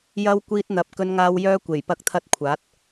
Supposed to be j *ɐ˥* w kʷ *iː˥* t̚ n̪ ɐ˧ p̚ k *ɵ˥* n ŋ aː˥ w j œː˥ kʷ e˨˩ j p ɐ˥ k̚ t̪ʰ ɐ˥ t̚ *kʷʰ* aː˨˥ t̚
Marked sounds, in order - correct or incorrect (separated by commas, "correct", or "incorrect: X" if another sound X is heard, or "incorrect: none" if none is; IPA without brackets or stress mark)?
correct, correct, correct, correct